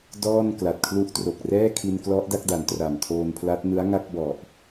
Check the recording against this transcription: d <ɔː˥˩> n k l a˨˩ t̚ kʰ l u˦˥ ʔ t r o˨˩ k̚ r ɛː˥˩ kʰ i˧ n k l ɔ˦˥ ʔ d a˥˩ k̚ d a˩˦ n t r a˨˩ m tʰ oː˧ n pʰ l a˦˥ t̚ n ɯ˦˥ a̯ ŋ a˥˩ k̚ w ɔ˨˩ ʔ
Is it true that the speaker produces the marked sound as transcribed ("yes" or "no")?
yes